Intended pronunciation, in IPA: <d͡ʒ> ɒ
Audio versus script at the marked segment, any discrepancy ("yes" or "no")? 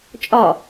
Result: yes